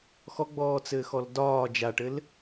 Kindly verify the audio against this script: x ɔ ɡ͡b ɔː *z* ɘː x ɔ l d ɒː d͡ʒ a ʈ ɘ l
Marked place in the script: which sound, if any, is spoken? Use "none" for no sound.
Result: t͡s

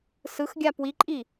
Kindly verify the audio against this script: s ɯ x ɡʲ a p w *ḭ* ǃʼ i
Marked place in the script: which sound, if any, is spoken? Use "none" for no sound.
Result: i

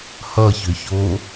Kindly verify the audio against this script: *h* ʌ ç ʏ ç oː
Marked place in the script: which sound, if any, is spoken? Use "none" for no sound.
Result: h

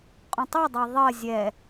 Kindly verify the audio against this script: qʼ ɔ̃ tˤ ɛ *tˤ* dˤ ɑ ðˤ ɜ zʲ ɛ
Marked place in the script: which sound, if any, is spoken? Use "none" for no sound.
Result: none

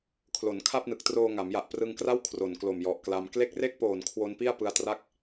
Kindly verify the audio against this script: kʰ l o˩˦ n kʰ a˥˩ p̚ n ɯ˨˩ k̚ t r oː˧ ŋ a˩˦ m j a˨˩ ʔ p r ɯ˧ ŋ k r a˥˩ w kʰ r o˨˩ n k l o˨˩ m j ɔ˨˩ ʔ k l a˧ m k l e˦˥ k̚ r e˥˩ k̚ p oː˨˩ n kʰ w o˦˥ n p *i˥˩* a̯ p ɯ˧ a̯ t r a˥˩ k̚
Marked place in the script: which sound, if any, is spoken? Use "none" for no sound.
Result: i˥˩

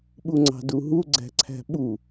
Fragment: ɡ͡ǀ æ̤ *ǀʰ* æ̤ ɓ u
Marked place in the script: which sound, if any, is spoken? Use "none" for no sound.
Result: ǀʰ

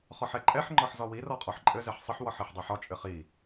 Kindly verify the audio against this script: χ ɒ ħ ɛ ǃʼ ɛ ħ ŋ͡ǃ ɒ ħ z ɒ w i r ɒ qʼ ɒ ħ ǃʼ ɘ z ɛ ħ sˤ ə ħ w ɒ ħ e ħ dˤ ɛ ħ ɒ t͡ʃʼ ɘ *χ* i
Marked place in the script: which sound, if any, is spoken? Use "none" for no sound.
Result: χ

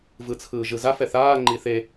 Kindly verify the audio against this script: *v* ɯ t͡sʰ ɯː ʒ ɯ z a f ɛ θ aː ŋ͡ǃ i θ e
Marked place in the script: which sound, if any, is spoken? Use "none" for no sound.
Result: v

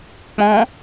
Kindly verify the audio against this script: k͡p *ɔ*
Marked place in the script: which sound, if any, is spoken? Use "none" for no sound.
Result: ɔ̃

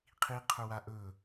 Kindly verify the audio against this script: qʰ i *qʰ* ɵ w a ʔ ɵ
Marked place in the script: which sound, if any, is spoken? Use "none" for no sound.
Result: qʰ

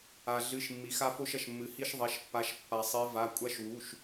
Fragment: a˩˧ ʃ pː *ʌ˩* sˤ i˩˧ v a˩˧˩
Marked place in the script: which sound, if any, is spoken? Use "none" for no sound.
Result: a˩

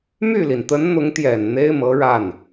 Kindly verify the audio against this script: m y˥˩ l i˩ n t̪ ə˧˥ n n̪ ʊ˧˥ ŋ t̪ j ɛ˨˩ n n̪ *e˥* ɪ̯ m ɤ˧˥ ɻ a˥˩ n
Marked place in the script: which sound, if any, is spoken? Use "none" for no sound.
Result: e˥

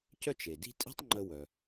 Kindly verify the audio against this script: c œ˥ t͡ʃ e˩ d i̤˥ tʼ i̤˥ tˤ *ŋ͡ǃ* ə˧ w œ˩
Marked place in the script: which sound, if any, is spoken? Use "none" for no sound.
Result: ŋ͡ǃ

